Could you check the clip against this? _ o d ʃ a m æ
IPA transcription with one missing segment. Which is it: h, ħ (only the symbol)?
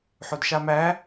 ħ